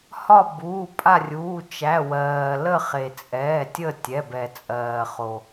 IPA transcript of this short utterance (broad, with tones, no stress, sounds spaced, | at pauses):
h ɒ˦˨ b uː˩˧˩ pʼ a˦˨ rʲ uː˩˧˩ t͡ʃ æ˩˧˩ w ɜː˩ l ə˦˨ χ e˩ t͡sʼ ɛː˩˧˩ tʲ ə˦˨ tʲ ɛ˩˧˩ b ɛ˩ t͡sʼ ɜː˩ χ o˩